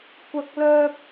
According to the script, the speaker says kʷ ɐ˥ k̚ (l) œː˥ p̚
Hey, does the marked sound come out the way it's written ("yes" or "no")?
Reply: yes